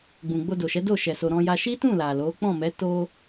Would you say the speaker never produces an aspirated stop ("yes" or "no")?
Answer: yes